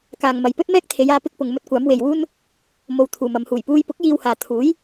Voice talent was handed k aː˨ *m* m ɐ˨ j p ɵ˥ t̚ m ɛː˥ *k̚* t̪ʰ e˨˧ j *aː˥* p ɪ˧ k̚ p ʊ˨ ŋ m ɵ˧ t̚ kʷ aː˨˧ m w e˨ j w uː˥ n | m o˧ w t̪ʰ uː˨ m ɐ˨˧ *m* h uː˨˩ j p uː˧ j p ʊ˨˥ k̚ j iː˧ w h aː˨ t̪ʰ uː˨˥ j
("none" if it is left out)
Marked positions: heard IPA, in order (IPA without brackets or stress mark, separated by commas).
ŋ, k̚, aː˧, m